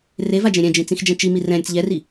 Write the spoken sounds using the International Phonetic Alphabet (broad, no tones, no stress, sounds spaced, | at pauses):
r e v a d͡ʒ ẽ ɾʲ ɛ̃ d͡ʒ ĩ t͡s ĩ x d͡ʒ ɛ̃ t͡ʃ i m i r ɛ̃ ɾʲ ə t͡s ʎ ɛ r i